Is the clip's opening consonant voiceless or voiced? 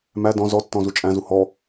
voiced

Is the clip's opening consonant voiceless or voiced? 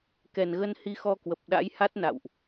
voiceless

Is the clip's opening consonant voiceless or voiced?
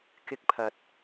voiceless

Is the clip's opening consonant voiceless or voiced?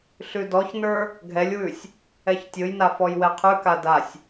voiceless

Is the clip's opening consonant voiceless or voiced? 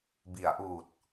voiced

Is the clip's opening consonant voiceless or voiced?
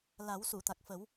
voiced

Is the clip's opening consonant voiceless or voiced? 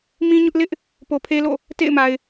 voiced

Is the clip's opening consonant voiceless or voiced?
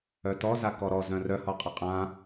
voiceless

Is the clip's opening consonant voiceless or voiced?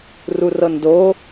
voiced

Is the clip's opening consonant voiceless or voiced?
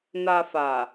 voiced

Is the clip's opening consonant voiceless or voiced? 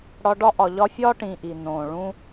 voiced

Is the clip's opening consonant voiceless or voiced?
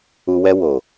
voiced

